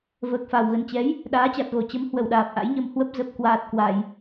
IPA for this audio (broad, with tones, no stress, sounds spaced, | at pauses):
v əː˨˩ k̚ f a˨˩ w ɣ ə˨˩ n t͡ɕ ɛ˨˦ j | ɗ aː˨˦ t͡ɕ a˨˩ t̚ ɣ o˧˩ t͡ɕ ə˨˦ m h w ə˧˩ w ɗ aː˨˩ p̚ ʔ a̰˧˥ j ɲ ə˧ m h w ə˦˥ p̚ z ə˨˩ p̚ k w aː˨˩ t̚ k w a˧˩˨ j